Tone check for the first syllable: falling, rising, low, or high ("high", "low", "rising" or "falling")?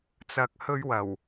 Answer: low